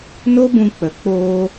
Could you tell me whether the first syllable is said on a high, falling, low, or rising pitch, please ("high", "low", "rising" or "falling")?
high